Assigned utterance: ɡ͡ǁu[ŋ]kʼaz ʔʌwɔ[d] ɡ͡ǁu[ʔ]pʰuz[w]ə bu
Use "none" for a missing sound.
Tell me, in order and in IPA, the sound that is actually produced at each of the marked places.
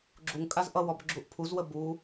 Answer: ŋ, b, ʔ, w

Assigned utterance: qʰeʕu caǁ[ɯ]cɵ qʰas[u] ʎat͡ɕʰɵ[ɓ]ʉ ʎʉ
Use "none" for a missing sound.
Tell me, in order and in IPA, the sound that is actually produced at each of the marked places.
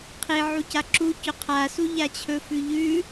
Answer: u, u, f

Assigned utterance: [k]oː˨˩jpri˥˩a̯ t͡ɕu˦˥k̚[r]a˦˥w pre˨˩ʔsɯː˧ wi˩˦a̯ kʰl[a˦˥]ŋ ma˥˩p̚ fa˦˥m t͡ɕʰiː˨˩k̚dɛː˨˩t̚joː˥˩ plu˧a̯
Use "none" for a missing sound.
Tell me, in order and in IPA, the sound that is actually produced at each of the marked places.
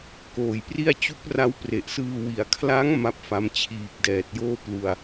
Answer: k, r, a˦˥

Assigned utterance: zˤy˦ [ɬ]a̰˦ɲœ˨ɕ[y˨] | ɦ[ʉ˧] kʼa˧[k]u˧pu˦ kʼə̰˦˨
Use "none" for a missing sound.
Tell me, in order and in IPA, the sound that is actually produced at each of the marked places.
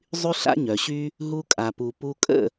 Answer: ɬ, y˦, u˧, p

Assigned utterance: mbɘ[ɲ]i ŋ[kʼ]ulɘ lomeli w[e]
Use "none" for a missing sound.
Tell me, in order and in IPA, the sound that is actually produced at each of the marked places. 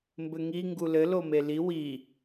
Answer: ŋ, ɡ, i

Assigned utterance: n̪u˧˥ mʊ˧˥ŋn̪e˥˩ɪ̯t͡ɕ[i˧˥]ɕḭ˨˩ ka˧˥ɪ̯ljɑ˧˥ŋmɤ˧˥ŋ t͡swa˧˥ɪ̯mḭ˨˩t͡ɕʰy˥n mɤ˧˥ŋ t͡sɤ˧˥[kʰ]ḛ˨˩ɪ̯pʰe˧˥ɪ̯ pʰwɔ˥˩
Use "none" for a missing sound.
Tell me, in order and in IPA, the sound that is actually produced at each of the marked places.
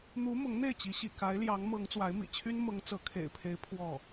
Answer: i˧˥, kʰ

